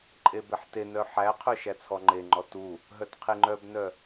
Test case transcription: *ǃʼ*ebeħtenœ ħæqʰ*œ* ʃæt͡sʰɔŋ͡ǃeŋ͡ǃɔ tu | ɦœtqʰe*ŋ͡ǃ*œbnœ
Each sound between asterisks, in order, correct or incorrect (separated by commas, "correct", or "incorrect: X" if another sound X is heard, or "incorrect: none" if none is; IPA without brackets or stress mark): correct, correct, correct